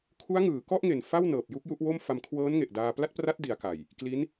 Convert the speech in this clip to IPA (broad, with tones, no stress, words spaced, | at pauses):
kʰu˦˥a̯ŋɯː˩˦kɔ˥˩ʔŋe˨˩n fa˥˩w nɤː˨˩p̚ju˥˩k̚ ju˦˥ʔwo˥˩m fa˧mkʰwɤː˦˥nŋe˨˩ʔdaː˧ pla˥˩t̚pra˦˥t̚di˩˦a̯ ka˨˩j | kli˦˥n